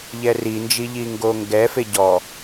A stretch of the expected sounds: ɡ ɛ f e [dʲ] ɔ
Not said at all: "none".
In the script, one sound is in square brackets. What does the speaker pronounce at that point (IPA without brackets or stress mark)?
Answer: ɟ